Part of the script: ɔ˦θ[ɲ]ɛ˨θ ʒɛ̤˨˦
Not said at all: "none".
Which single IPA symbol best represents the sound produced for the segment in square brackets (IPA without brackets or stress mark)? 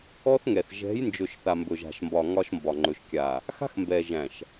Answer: ŋ